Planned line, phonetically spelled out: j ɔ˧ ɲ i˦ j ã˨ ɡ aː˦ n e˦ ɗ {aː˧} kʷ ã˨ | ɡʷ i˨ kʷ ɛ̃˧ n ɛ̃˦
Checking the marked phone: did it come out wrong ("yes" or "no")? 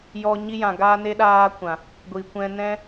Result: yes